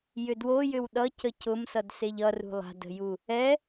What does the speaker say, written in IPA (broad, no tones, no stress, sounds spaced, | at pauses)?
j ʏ d w o j ʏ w ɗ ʌ c ə c ʊ m s ʌ d s e ʎ ʌ r ṳ lˠ a̤ d ə̤ j u | ɛ